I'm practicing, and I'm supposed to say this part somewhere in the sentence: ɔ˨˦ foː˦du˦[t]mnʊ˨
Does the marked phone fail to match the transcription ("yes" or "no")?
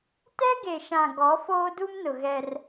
yes